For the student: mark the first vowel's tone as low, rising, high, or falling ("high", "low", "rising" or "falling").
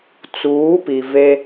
rising